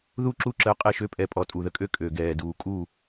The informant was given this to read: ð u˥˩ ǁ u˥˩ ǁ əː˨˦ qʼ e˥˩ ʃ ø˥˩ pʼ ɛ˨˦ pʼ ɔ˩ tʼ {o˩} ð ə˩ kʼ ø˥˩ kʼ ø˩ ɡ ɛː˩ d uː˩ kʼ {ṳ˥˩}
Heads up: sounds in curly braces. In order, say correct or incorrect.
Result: incorrect: u˩, incorrect: u˥˩

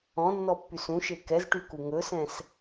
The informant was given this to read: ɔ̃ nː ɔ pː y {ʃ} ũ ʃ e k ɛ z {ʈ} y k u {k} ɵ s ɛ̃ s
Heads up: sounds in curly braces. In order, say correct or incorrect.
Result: incorrect: s, correct, incorrect: ŋ

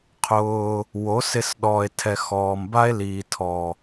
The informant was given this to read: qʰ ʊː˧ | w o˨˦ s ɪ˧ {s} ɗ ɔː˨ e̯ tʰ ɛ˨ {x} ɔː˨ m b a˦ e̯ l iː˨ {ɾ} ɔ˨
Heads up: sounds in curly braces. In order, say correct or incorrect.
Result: correct, correct, incorrect: tʰ

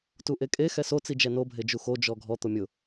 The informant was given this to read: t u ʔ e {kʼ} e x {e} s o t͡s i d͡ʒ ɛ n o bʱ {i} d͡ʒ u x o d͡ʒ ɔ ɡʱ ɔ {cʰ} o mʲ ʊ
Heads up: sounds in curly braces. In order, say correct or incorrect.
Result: correct, incorrect: ɛ, incorrect: e, incorrect: t̪

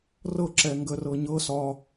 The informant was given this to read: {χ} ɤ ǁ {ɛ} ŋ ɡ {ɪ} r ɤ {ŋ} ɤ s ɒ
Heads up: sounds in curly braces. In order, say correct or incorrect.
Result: incorrect: r, correct, incorrect: ə, incorrect: ɲ

